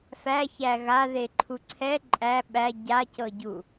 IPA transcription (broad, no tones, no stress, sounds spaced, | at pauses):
f æ ç æ ɣ a ð e ǃʰ u ǀʰ ɛ ǃʼ æ ɓ æ ɟ a c ɤ ɟ u